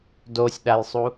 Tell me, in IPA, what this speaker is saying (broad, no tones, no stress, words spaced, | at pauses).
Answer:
dosʲɗajsˤu